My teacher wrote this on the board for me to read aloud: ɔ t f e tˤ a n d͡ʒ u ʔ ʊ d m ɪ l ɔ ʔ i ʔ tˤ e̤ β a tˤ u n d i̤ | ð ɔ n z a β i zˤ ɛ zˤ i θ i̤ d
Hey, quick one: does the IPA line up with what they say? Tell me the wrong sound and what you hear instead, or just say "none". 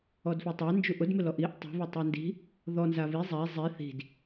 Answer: t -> d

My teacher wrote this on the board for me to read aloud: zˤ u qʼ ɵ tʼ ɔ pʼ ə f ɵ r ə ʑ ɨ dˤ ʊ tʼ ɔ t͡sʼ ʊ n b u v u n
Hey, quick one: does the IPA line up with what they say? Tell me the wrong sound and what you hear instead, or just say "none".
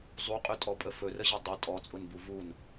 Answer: none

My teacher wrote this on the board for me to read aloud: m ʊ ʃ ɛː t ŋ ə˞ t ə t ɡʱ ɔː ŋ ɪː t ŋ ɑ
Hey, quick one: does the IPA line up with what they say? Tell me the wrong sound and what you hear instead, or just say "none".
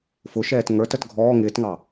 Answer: m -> f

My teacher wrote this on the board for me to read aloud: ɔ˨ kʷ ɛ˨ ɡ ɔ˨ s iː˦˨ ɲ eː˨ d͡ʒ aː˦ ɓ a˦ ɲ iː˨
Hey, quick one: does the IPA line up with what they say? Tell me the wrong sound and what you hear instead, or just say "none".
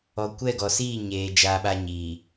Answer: ɛ˨ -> ɛ˦˨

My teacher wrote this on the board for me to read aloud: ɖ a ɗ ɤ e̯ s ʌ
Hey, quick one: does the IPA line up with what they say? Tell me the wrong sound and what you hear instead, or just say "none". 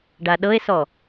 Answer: ʌ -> ɔ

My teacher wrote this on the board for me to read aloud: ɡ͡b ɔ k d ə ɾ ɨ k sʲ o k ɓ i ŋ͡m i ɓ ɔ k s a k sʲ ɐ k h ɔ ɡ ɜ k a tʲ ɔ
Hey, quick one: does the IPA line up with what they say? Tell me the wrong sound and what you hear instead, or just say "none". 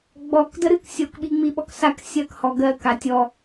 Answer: none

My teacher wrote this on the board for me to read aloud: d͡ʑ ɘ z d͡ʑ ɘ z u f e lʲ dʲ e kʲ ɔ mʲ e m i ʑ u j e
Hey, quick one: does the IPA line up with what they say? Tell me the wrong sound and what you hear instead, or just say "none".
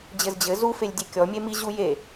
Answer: none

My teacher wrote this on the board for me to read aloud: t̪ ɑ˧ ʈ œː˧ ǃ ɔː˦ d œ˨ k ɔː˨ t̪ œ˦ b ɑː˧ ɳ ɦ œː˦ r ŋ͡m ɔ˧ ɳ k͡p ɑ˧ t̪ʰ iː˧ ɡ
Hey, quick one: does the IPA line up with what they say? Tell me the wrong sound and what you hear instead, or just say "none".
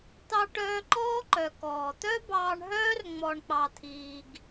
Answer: d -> ǃ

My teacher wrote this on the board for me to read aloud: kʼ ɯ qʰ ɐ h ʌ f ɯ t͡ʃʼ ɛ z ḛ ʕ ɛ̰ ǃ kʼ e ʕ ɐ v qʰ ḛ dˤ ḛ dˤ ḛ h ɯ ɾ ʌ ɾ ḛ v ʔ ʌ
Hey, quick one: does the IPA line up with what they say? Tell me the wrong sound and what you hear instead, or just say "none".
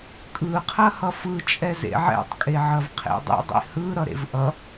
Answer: ǃ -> tˤ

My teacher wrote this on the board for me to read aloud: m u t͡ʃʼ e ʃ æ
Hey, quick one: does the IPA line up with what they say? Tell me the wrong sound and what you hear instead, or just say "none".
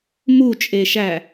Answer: none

